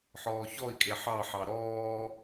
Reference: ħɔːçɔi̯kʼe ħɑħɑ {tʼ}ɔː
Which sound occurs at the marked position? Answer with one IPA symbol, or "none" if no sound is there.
ɾ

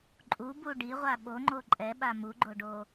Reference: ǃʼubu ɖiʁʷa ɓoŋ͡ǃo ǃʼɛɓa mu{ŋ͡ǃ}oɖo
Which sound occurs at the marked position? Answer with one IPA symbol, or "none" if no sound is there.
ɡ͡ǃ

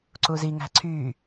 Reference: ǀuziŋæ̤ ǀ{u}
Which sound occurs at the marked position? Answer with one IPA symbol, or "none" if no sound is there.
y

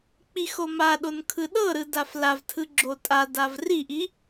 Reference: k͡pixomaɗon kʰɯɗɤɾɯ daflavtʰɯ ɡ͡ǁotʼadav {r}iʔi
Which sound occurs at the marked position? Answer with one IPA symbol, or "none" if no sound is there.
r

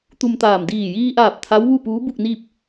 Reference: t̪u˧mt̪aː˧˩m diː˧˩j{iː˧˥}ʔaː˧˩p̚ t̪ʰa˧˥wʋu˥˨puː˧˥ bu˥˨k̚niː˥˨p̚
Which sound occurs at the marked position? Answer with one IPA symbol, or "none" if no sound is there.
iː˧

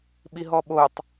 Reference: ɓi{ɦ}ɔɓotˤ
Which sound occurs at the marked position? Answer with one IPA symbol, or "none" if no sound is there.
ɦ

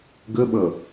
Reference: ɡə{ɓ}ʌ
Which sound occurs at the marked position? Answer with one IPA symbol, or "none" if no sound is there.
ɓ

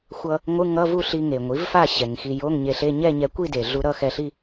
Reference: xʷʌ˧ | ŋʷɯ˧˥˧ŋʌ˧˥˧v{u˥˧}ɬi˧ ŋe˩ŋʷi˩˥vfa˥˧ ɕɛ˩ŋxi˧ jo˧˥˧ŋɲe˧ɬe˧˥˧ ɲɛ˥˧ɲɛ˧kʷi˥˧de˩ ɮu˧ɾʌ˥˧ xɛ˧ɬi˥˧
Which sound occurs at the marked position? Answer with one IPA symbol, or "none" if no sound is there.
u˥˧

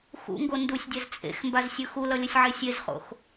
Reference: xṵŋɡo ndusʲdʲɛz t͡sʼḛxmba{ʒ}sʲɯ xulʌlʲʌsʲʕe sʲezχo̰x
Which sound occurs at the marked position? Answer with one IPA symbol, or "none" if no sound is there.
z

